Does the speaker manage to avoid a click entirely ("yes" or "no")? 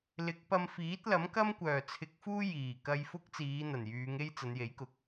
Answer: yes